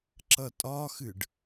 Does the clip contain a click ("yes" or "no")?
yes